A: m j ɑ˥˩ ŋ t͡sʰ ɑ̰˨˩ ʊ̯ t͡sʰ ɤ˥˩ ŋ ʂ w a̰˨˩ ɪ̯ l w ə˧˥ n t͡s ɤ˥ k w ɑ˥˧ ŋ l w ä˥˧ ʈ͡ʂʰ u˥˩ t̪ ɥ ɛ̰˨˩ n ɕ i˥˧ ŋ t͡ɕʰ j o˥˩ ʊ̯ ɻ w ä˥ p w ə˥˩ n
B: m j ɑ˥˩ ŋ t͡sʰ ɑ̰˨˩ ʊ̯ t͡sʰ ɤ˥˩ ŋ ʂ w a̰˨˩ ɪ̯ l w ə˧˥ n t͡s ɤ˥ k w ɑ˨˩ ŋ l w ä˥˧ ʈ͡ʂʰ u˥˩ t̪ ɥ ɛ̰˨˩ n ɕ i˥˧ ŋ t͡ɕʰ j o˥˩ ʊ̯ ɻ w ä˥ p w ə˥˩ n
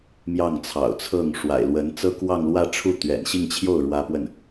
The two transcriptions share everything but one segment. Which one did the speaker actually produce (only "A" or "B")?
A